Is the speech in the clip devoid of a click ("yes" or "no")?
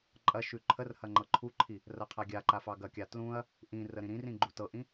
no